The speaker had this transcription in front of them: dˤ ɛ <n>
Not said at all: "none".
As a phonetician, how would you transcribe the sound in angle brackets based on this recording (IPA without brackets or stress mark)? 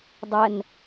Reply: n